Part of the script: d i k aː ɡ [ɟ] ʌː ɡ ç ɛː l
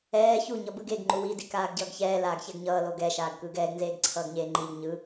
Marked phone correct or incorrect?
correct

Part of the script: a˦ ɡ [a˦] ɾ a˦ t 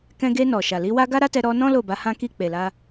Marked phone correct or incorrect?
correct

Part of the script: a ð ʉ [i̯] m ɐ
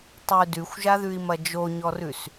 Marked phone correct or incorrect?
correct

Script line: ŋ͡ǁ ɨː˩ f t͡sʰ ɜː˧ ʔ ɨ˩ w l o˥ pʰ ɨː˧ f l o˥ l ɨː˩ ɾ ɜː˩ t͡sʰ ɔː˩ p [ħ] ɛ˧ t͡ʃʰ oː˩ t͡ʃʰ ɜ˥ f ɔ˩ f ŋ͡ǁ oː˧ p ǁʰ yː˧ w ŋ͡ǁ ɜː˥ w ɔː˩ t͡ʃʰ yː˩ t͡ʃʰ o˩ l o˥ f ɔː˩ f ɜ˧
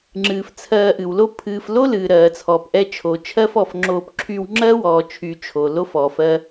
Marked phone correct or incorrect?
incorrect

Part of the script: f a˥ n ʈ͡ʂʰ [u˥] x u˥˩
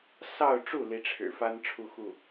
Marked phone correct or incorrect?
incorrect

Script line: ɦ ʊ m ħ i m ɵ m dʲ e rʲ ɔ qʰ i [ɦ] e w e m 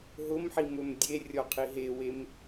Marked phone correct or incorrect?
correct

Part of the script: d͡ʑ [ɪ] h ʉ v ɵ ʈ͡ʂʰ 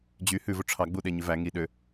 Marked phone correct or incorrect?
incorrect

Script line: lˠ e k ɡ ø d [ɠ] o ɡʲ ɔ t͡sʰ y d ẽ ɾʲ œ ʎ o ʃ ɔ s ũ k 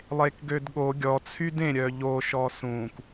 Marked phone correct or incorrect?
correct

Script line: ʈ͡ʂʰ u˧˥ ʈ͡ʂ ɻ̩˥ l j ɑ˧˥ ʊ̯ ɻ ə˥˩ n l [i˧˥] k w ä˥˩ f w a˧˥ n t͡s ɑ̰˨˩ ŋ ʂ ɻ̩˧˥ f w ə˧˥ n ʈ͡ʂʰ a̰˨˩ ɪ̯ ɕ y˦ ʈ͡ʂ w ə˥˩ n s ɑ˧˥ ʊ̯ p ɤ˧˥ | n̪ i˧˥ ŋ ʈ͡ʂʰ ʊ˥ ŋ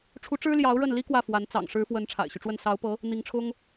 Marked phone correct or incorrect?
incorrect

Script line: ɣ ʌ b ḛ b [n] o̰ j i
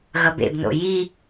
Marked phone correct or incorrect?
correct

